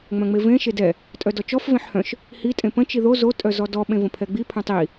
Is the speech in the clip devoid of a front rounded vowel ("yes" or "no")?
no